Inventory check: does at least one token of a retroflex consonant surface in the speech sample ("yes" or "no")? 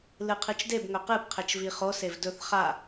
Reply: no